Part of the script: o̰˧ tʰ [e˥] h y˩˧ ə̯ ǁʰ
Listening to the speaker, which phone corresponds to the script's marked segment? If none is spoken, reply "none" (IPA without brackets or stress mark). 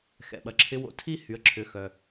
i˥